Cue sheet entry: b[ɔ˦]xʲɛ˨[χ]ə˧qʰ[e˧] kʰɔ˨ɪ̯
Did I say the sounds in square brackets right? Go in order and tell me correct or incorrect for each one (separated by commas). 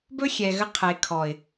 incorrect, incorrect, incorrect